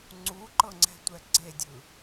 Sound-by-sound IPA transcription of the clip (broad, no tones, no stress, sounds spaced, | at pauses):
ŋ͡ǀ u ǃ ɤ ŋ͡ǀ ɛ̤ tʷ ɛ ɡ͡ǀ e dʲ ɯ